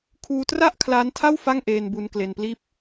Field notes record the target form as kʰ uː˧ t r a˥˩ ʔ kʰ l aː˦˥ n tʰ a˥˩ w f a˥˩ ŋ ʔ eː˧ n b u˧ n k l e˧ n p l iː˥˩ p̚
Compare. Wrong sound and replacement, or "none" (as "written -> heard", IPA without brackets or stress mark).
none